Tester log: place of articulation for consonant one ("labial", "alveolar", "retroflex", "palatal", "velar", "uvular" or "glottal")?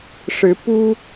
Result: retroflex